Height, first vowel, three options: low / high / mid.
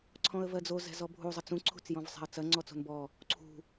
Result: mid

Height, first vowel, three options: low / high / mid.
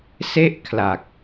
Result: mid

